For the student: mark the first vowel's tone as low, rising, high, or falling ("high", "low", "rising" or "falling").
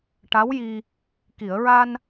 rising